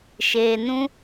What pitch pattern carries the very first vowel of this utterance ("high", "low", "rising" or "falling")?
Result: low